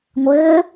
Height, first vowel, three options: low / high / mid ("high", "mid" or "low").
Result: mid